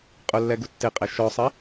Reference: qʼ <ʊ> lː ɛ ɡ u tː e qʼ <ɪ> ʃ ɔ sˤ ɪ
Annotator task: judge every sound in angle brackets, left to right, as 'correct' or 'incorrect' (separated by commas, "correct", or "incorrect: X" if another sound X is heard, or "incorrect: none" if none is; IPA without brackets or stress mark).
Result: correct, incorrect: ɛ